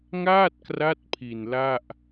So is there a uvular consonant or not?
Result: no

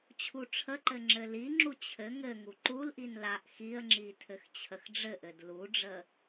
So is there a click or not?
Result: yes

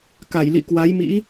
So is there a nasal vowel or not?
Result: no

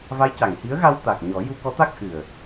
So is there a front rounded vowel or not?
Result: no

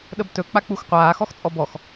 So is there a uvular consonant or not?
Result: yes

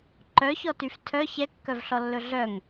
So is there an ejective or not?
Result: no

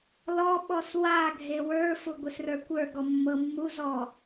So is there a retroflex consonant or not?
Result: no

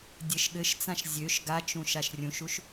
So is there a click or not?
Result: no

